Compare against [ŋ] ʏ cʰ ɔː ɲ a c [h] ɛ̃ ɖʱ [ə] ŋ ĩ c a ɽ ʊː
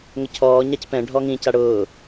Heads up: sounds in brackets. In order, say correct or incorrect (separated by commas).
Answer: correct, incorrect, incorrect